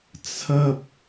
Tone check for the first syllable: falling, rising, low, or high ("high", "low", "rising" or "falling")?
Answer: high